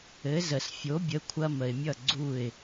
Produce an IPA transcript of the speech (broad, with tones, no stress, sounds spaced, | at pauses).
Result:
ɘ˩˥ z ə˩ s fʲ o˩˥ bʲ ə˩˥ kʷʰ ɐ˧ m ə˩ ɪ̯ mʲ ʌ˥˩ ɡ͡ǀ u˥˩ ɪ̯